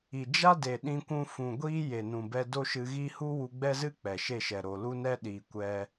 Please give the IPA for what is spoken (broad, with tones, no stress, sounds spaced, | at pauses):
i˨ d͡ʒ a˦ d e˨ ɗ ĩ˧ kʷ ũ˧ f ũ˨ ɡʷ iː˦ j e˨ n ũ˨ b ɛ˧ d o˦ ʃ ɨ˧ ɣ i˦ h u˦ w u˧ ɡ͡b ɛ˦ z ɨ˦ k͡p ɛ˨ ʃ e˦˨ ʃ ɛ˨ ɾ o˨ l u˦ n ɛ˦ ɗ iː˨ kʷ ɛ˧